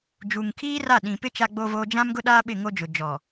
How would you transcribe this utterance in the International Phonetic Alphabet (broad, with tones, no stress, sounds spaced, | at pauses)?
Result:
d͡ʒ uː˨ ŋ kʰ iː˦ r a˦˨ ɗ ĩ˨ p ɪ˦ t͡ʃ a˦ ɡ͡b o˦ v oː˦ d͡ʒ ã˦ m ɡ ʊ˦ ɗ aː˦ ɓ ɪ˦˨ ŋ o˦ d͡ʒ ʊ˨ d͡ʒ ɔ˨